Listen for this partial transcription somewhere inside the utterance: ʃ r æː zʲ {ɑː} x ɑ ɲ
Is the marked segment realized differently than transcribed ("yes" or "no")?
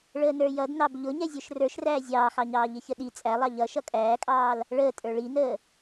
no